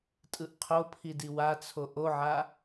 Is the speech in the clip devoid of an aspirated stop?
no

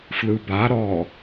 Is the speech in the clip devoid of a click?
yes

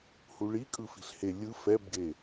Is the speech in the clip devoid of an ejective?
no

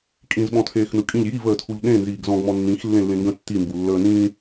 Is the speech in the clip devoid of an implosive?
no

